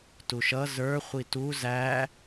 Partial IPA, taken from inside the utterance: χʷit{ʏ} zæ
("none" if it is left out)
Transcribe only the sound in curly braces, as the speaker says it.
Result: u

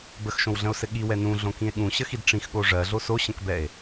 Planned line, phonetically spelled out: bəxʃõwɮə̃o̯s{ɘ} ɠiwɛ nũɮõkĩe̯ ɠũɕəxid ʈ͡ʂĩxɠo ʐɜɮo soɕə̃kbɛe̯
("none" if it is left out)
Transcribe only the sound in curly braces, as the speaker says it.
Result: ɘ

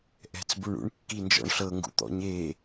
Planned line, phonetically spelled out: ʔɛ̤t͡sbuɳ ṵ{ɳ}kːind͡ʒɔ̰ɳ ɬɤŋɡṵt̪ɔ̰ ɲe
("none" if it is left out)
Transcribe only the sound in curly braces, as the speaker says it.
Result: ɳ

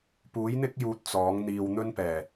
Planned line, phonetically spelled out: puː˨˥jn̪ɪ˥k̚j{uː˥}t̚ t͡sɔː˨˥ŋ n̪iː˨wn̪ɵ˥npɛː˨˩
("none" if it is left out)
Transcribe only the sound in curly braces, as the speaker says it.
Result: uː˨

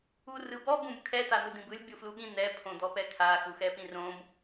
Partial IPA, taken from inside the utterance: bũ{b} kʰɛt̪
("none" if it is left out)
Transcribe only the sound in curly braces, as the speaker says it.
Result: b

